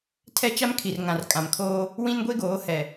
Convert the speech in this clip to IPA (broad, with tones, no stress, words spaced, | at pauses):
tʰɛ˦t͡ʃa˦m kʰi˨r ŋã˨rkʼã˨mkʰoː˦ | wĩ˦nɡʷe˦ɡoː˨˦ hɛ˨